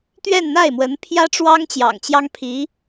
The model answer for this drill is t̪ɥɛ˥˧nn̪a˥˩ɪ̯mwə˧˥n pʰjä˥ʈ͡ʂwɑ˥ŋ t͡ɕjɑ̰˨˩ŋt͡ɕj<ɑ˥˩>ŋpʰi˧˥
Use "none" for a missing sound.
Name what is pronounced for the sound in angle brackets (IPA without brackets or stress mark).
ɑ˥